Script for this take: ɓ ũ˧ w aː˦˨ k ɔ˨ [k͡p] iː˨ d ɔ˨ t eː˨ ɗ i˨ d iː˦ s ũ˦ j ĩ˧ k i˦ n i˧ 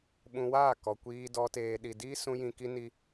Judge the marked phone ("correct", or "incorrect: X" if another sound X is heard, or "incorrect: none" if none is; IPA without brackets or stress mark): incorrect: kʷ